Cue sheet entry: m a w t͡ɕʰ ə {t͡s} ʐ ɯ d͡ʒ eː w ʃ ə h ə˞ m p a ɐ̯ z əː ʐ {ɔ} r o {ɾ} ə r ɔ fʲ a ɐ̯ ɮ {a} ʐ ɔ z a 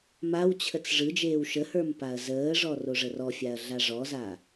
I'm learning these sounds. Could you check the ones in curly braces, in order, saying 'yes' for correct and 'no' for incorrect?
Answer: yes, yes, no, yes

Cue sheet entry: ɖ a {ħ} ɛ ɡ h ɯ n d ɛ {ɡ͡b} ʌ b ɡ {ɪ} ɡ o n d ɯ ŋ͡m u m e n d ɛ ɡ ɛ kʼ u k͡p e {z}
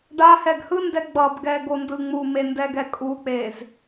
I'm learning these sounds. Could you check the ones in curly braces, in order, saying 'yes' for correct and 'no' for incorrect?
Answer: no, yes, no, yes

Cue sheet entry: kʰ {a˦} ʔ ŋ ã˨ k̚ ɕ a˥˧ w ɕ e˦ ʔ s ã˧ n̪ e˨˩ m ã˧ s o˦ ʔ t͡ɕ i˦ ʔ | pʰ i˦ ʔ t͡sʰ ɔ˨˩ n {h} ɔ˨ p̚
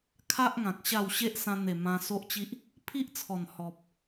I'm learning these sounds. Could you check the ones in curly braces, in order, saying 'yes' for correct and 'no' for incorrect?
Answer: yes, yes

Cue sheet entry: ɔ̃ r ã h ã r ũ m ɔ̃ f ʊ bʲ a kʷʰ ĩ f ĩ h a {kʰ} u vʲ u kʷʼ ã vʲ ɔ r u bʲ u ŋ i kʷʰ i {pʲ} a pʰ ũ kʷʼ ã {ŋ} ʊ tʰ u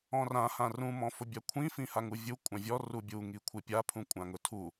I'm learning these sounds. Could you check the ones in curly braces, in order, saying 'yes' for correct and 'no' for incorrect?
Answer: no, yes, yes

